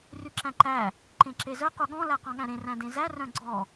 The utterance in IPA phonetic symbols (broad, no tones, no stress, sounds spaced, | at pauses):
r y ǁ æ̃ ǃ æ | ǃ ẽ ǁ e z œ q u ɠ ɔ̃ l æ q ɔ̃ ɠ æ̃ ɾ ẽ r æ̃ d ẽ z æ r œ̃ ɡ͡ǀ ɔ